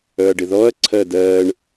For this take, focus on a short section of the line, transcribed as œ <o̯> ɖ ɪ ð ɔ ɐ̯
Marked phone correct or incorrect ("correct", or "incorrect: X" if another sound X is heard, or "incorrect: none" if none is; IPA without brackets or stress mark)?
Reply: incorrect: ɐ̯